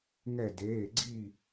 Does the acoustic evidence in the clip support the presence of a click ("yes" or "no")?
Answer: yes